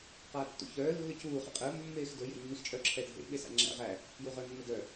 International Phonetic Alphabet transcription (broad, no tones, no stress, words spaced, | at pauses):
qaːtːṵçœː lːɵcuː χḛqʼəː mːeːxdɵ jḛnːixt͡ʃʼœ ǁʰɛdʱḛ ɓesa̰ŋ͡ǁæ̰ ʁæ | juʁəːnːədœ